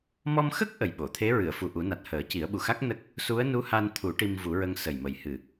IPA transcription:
m ɔ˧ m x ə˦˥ k̚ ʔ ə˨˩ j ɓ o˨˩˨ t̪ʰ e˧˥ ɹ ɨ˨˩˨ ə̯ f u˨˩ ʔ u˨˩˦ n a˨˩ t̚ h əː˨˩˦ c i˨˩˦ ə̯ ɓ u˨˩ x a˦˥ k̚ n ə˦˥ k̚ | s u˧˥ ə̯ n u˧˥ h a˧ n t̪ʰ u˨˩˦ ʈ i˧ m v u˨˩˦ ɹ ə˧ ŋ s ə˨˩ j m ə˨˩ j h ɨ˨˩

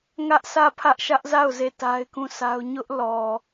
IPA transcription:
ŋ ä˦ ʔ sʰ ä˦˨ pʰ ä˦ ʔ ʃ ä˦ ʔ z a˦˨ ʊ̯ z e˦˨ t a˦ ɪ̯ k ũ˦˨ sʰ a˦ ʊ̯ ɲ ʊ˦ ʔ l ɔ˨

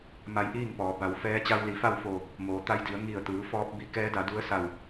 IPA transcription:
m a˧˥ j ʔ iː˥˨ ŋ p ɔː˩˧ b a˩˧ w f ɛː˧˥ t͡ɕ a˧ w l i˩˧ f a˥˨ w f oː˧˩ | m oː˩˧ t̪ a˧ j d i˩˧ ə̯ ŋ i˧˩ ə̯ t̪ ɯː˩˧ f ɔː˧ p̚ b i˧˥ k ɛː˧˥ d a˩˧ d u˧˥ ə̯ s a˧˩ w

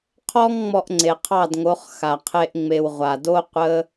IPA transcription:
qʰ ɔ˦ ŋ ŋ͡m ɔ˧ ʔ ŋ͡ǀ e˨ qʰ ɑ˦˨ d ŋ o˨˦ χ x a˨ qʰ e˦ ʔ ŋ͡m e˧ w ʁʷ a˨ d o˦ qʷ ə˦

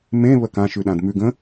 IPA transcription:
m ẽ β ə k ã ʃ ʉ ɗ ã d m ʉ ɡ ə̃

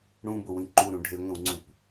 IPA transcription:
ɽ ũ b ʊ w ĩ ǃ u ɾ ũ ɖʱ e ŋʷ ĩ w ŋ͡ǀ ũ p

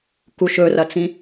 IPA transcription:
k u ʃ ɵ r ɐ t͡s ĩ

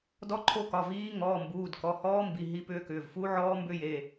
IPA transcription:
d ɔ˦˥ ǃʰ o˦˥ k ɒ˩˧˩ v iː˦˥ ŋ ɔː˩˧˩ m b uː˩˧˩ d k ɔ˩˧˩ h ɔː˦˥ m b i˩˧˩ ɦ i˦˥ p ʏː˦˥ k ʏː˩˧˩ v f u˦˥ ʕ ɔː˦˥ m b ʏ˦˥ j e˩˧˩

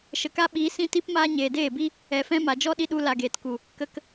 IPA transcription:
ʃ ə˨ k a˦ ɓ iː˨˦ s ĩ˦ t i˦ p m aː˦ ɲ eː˨ d eː˦˨ b i˦ | ɛ˨ f ɛ̃˧ m a˨ d͡ʒ ɔ˦ ɗ i˧ ɗ u˧ l a˨ ɡ eː˨ t k u˨ | k ə˧ k

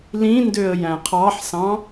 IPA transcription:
l ĩ n d ø ə̯ j æ̃ qʰ ɑ ħ s ɑ̃

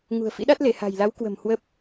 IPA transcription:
ŋ ṳ˨˩ ə̯ f ḭ˧˥ ɗ a˦˥ t̚ l e˧˩ h a̤˨˩ j l a˨˦ w k w ə̤˨˩ m h w ə˦˥ p̚

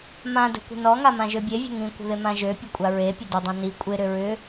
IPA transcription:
m ã d ə̤ kʷ ə̤ n ɔ ŋ a m ã ʒ ø bʲ e vʲ ə̤ ŋ ĩ kʷ ə̤ ð ɪ m ã ʒ ø pʲ ʊ kʷʼ a ɹ e pʲ ʊ d ʏ dˤ ã n i kʷʼ ɪ ɾ ʏ ɹ ʏ

